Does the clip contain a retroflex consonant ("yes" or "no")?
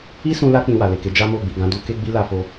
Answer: no